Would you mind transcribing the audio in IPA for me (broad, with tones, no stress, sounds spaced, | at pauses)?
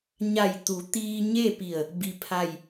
ɲ a˧˩ j t̪ u˩˧ t̪ iː˧ ɲ e˥˨ p i˧˩ ə̯ | b i˧ pʰ a˥˨ j